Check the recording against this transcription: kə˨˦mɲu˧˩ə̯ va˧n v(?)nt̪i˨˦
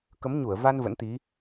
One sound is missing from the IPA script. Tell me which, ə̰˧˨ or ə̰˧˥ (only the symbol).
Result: ə̰˧˥